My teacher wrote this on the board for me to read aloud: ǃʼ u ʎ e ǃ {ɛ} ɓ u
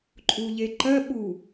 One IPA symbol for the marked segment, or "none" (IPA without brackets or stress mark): ɜ